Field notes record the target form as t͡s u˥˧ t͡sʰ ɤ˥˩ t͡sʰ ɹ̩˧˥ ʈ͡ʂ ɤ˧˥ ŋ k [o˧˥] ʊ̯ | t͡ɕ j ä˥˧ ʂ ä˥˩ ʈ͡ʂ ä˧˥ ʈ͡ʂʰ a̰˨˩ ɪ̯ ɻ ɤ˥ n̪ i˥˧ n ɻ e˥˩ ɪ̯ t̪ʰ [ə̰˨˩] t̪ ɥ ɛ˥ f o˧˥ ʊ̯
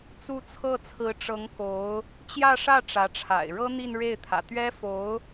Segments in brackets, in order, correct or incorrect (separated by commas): correct, incorrect